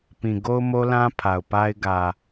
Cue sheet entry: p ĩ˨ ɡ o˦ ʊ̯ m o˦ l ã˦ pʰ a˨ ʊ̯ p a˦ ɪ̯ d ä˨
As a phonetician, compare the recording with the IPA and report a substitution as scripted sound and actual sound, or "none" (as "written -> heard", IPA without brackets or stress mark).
d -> ɡ